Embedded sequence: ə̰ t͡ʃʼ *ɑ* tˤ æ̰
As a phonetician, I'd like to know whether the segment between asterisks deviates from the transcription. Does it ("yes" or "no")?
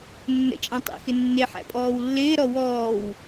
yes